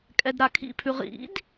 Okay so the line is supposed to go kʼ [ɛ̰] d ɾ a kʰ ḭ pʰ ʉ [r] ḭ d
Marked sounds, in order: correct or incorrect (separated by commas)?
incorrect, incorrect